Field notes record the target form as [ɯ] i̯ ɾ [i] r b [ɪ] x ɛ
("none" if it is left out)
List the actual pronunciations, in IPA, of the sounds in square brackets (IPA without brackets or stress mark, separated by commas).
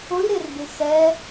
ʊ, ɪ, ɪ